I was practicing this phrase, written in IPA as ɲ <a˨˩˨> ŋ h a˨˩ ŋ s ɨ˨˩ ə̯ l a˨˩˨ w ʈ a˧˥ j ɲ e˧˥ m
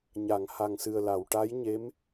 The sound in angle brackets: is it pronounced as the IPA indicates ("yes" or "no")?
yes